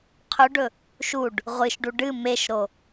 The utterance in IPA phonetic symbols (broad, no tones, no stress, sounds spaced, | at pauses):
qʰ ɵ ɖ ɵ | ʃ u ɖ | ʁʷ ɨ ʃ ɖ u ɖ ɨ m e ʃ ɾ o